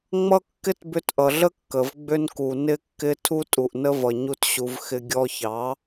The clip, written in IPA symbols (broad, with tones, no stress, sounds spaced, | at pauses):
ŋ͡m ʌ˦ kː ɪ˦ t b ʏ˧ t ʔ ʌ˨ ɮ ə˦ kː ə˨ v ɡ͡b ʏ˧ n k u˨ n ɪ˧ kː ɪ˧ tʰ u˦ tʼ u˨ ʔ n ə˦ v ʌ˨ ɲ u˦ t ɕ u˧ v x ɪ˧ ɡʲ ɔ˧ ç ɑ˨˦